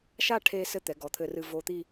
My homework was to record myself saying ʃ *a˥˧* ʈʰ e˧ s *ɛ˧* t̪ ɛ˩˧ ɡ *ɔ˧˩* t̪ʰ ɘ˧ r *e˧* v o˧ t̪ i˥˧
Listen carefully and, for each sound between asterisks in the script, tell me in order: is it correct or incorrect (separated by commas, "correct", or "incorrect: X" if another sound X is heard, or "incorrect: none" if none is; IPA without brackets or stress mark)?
correct, incorrect: ɘ˧, incorrect: ɔ˩˧, incorrect: ɨ˧